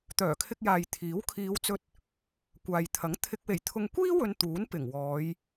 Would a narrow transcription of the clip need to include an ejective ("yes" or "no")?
no